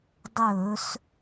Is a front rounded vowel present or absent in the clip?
absent